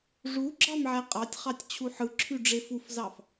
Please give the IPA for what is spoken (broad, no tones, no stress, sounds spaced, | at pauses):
ʐ u ɡ͡ǁ ɑ m ʕ æ qʼ ɑ tʲ χ ɑ tʲ t͡ɕʰ u ħ ɯ ǁʰ y ɖ͡ʐ e f u f z ɑ f